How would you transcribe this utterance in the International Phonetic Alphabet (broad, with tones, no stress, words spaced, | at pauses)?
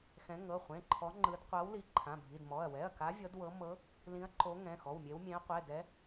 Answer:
xɛ̃˨˦ ŋɤ˩˧˩χʷẽ˩˧˩ǃʰɔ˨˦ ŋ͡ǃɯ˨˦d qʷa˨˦w li˨˦ǃʰã˩˧˩bʱi˩˧˩dmɔ˩˧˩ɐ̯ wɛ˩˧˩ɐ̯ka˨˦ vʲɤ˨˦dwɤ˨˦ mɤ˨˦ | lĩ˨˦ɐ̯ǃo˨˦ ŋɛ̃˩˧˩xɔ˩˧˩wmʲe˨˦w mʲẽ˨˦ɐ̯qʷɛ˩˧˩ dɛ˨˦